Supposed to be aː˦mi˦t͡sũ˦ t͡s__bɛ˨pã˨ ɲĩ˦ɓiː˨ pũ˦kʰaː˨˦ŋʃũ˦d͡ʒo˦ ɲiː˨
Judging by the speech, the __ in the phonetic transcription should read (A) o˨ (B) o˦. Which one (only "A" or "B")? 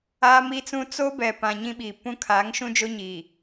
B